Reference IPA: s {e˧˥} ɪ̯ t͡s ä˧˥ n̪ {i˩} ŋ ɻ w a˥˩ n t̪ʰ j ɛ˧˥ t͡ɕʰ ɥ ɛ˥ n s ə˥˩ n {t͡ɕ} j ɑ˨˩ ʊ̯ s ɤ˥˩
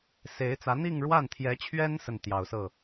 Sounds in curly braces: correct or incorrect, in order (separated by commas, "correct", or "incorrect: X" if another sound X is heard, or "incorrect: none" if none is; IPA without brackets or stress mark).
correct, incorrect: i˥˧, incorrect: t̪